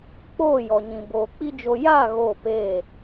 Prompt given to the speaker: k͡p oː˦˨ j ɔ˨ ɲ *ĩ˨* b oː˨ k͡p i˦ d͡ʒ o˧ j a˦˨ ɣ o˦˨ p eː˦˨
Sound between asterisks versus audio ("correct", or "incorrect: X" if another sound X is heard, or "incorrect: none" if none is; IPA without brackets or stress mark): correct